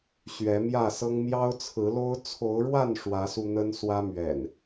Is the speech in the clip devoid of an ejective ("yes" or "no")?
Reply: yes